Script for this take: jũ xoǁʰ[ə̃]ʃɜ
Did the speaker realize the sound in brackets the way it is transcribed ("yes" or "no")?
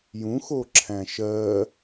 no